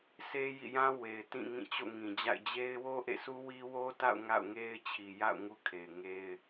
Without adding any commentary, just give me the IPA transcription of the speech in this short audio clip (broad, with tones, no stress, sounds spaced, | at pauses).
s e˦ j ḭ˦˨ j ã˦ w e˨ ɪ̯ t ĩ˦˨ ŋ ĩ˦˨ t͡ɕ o̰˦˨ ŋ ĩ˨ d͡ʑ a̰˦˨ ɪ̯ d͡ʑ e˦ ɪ̯ w o˦ ʔ ḛ˦˨ sʰ u˦ w i˦ w o˦ t a̰˦˨ ʊ̯ ŋ a̰˦˨ ʊ̯ ŋ e˦ ɪ̯ t͡ɕʰ i˨ j a̰˦˨ ʊ̯ ŋ u˦ kʰ e˨ ɪ̯ ŋ e˦ ɪ̯